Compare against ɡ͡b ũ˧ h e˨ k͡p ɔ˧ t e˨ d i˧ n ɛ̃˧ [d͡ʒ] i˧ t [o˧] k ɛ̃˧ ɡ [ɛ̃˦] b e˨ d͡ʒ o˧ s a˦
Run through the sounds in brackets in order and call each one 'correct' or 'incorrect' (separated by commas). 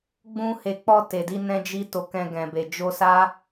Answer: correct, correct, incorrect